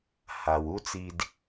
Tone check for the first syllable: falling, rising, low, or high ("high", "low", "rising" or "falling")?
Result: low